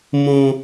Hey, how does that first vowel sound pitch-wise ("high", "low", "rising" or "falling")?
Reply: high